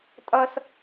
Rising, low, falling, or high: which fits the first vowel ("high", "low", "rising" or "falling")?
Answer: high